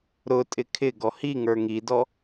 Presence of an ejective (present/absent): present